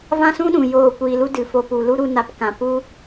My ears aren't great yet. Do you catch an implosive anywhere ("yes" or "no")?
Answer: yes